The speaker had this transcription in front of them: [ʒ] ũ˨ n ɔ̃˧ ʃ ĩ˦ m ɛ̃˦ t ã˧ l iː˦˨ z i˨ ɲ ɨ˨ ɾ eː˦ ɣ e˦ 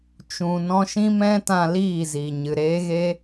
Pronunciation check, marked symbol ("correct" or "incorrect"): incorrect